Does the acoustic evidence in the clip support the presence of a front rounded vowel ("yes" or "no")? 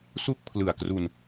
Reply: no